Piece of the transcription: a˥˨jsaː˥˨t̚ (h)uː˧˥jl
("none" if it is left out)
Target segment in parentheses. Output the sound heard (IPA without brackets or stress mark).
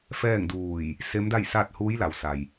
h